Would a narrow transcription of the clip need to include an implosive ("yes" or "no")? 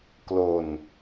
no